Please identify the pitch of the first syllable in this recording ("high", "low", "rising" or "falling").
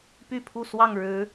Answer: falling